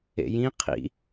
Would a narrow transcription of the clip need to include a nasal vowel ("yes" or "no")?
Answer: yes